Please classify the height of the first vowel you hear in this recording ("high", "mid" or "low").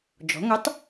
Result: mid